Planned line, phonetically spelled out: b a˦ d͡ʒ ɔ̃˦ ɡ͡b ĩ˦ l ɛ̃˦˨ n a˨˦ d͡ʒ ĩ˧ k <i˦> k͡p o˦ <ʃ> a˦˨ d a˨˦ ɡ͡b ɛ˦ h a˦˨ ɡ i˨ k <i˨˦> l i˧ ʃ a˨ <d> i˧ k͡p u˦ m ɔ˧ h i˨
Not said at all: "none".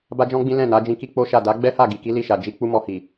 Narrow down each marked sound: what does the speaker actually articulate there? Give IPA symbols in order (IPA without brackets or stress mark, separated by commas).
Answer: i˦, ʃ, i˨˦, d͡ʒ